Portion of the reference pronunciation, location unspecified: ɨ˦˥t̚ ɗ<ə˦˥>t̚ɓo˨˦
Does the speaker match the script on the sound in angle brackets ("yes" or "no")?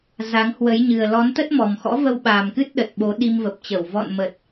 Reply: no